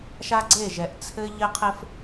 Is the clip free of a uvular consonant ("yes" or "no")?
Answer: no